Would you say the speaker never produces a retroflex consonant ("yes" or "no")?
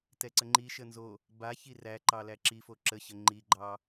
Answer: yes